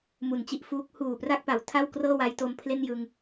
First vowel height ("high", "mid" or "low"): high